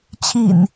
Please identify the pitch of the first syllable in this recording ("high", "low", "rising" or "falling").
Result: low